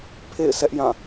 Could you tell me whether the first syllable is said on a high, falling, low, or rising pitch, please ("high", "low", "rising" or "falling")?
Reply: falling